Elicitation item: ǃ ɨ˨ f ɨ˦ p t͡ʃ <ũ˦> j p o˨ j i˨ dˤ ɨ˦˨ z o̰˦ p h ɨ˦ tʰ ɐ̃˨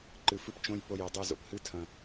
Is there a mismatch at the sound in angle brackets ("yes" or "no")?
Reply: yes